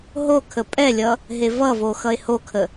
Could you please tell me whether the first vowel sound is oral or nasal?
oral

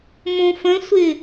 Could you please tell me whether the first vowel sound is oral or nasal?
nasal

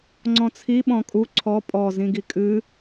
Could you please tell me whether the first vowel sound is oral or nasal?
nasal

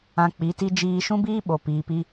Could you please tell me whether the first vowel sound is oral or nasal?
nasal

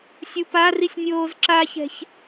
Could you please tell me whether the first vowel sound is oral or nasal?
oral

